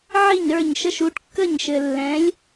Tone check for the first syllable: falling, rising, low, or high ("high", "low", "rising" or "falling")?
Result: falling